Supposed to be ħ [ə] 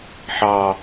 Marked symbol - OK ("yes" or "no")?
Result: no